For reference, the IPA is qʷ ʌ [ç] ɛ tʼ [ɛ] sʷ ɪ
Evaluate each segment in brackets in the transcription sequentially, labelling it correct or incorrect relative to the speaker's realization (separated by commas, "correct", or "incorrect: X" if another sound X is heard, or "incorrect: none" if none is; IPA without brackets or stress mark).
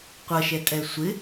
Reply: incorrect: ʃ, correct